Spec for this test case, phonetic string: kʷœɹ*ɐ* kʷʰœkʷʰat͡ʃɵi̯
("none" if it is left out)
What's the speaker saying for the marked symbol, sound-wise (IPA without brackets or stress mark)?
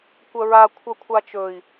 a